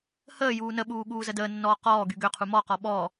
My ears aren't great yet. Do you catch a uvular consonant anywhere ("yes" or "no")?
yes